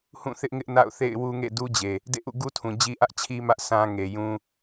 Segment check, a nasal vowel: present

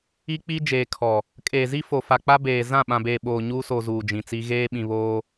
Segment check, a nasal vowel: present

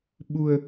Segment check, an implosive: present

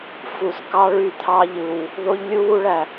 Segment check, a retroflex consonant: present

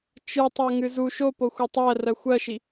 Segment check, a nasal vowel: absent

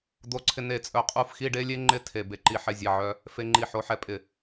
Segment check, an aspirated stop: present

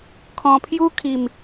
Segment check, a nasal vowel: present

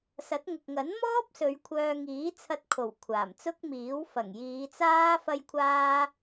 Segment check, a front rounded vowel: present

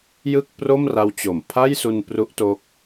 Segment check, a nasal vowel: absent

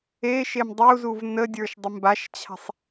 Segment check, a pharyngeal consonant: absent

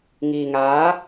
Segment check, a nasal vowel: absent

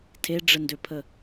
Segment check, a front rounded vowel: present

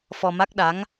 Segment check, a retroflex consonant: absent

